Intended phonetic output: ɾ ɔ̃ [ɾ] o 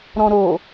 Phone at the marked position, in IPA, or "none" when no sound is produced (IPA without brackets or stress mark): ɾ